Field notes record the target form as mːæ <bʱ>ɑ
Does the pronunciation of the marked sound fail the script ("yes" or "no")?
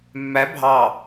no